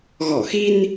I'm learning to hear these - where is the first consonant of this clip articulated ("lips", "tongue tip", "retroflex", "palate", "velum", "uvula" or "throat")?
velum